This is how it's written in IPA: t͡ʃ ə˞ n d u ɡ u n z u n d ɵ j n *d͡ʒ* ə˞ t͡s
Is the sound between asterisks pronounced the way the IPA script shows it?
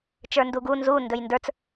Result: no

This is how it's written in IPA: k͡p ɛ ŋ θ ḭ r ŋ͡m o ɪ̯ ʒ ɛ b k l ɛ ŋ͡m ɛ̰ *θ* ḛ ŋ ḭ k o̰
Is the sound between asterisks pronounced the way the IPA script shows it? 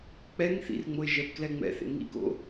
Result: yes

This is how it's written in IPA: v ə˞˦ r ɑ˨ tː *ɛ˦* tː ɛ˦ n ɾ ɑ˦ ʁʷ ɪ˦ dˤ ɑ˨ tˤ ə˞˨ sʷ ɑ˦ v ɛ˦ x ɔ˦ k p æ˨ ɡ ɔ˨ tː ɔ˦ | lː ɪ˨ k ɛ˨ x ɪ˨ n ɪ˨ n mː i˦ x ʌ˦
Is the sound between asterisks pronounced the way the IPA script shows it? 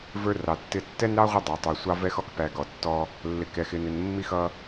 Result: no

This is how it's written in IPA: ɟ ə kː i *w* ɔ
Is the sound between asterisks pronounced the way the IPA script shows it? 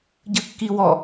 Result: yes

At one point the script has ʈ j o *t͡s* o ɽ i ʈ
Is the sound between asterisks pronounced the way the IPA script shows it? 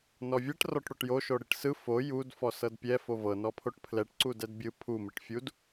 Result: no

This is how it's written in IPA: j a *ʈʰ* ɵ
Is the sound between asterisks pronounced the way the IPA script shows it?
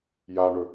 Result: no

